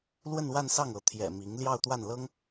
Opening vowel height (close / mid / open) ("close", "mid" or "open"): mid